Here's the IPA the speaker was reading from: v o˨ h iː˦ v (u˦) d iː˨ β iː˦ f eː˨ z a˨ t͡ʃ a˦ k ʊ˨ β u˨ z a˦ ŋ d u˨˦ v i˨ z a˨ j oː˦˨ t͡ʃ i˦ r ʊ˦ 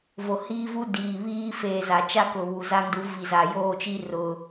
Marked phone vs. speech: correct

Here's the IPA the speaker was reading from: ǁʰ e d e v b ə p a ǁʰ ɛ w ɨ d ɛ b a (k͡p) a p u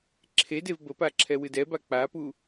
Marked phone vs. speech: correct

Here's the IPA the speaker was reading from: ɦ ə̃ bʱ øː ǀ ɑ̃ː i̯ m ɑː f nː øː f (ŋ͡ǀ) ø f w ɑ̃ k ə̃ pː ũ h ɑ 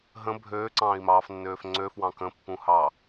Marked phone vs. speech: correct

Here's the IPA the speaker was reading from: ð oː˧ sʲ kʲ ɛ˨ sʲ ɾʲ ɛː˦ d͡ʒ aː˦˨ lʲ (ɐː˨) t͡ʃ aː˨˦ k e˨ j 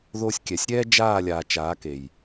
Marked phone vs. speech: incorrect: aː˨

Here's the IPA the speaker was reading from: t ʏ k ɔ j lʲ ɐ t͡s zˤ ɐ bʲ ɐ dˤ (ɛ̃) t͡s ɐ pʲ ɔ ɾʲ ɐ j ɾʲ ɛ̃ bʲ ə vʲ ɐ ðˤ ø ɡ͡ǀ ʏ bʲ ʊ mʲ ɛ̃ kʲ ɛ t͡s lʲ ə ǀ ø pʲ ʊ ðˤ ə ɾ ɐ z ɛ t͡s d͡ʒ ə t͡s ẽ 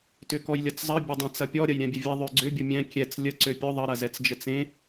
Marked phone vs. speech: correct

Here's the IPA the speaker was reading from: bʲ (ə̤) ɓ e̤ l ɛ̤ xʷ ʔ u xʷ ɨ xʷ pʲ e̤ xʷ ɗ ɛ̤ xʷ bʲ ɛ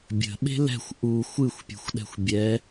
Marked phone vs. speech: correct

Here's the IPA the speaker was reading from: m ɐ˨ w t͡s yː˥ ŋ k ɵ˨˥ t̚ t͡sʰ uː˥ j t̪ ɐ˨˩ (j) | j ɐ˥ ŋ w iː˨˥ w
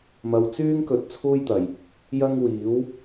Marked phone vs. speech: correct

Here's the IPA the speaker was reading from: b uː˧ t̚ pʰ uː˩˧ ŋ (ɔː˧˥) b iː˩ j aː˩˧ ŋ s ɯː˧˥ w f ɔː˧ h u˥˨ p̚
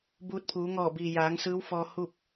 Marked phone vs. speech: incorrect: ɔː˧˩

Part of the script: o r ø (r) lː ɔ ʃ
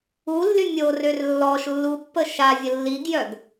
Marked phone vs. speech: correct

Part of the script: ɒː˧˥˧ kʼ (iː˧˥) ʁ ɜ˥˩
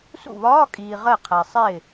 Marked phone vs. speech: incorrect: iː˨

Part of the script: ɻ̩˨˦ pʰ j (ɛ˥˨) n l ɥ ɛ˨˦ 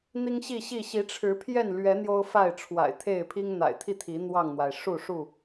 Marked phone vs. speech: correct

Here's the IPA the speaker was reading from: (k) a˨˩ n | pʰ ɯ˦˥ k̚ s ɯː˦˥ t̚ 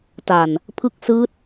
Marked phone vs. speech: incorrect: t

